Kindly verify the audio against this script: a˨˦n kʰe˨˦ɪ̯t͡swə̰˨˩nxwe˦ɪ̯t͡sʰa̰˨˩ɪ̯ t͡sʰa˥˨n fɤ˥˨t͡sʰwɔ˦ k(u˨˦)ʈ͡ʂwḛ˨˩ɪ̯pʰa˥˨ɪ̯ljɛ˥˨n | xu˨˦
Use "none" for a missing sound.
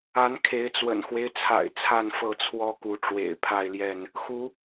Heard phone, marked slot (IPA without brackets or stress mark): u˨˦